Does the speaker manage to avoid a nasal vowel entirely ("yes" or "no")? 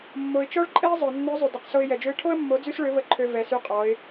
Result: yes